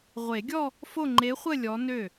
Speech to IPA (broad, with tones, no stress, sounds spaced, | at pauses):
ʁʷ e˨˩˦ ɡʲ ɔ˥˧ | f o˥˧ ŋ͡ǃ e˧˥ χʷ ə˥˧ lʲ ɔ˧˥ n ø˥˩